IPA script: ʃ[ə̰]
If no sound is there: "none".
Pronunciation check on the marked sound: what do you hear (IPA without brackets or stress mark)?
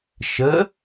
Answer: ə